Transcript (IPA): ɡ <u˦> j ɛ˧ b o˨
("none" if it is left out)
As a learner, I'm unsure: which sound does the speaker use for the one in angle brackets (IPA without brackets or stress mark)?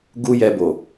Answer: u˦